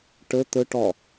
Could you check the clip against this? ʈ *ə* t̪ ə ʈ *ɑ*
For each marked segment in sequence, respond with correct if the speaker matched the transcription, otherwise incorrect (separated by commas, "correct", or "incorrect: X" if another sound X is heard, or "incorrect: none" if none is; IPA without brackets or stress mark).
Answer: correct, incorrect: ɒ